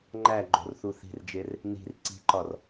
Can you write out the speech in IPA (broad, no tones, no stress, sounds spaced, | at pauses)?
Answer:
ŋ͡ǃ æ ɡ͡ǃ o̤ r θ u θ i̤ r d͡ʒ e r | n i̤ r ǀ i̤ ǃ ɒ r